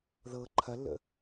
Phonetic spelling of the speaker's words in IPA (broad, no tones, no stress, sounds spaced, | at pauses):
ð ɤ ǃʰ ɐ lː ə̰